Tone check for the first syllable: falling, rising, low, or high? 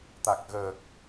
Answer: low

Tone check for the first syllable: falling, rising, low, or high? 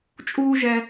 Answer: high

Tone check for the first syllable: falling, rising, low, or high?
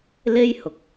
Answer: high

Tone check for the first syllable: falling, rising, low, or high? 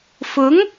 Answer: rising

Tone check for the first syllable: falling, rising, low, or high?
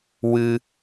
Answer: high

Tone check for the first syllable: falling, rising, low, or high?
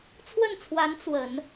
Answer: falling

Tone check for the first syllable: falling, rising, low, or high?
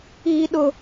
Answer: high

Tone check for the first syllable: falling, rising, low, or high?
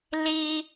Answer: high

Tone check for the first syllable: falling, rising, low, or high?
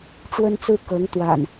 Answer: high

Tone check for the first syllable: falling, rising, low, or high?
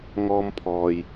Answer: high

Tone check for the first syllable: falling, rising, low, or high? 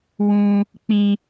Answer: high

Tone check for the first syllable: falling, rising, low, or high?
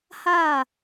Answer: falling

